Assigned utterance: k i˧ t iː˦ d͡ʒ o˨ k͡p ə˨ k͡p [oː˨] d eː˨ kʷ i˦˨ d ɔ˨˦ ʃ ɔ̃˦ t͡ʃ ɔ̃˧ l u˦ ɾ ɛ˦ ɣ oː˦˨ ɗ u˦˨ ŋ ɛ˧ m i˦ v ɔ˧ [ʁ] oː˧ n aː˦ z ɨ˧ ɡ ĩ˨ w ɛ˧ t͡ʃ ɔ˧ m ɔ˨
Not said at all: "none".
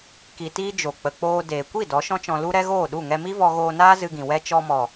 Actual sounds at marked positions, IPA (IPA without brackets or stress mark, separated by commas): oː˧, ɣ